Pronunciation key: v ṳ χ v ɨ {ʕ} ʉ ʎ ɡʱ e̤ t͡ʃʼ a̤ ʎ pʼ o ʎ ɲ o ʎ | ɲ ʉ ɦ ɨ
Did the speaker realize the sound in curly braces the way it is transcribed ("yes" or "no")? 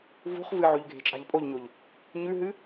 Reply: yes